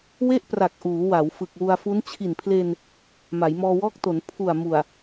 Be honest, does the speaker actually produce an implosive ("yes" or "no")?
no